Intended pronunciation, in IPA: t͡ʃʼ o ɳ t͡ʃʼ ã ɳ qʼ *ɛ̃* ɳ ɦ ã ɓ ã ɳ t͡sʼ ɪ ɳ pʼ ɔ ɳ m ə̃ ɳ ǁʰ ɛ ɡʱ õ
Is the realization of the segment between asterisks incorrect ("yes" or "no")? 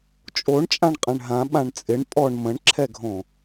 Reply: no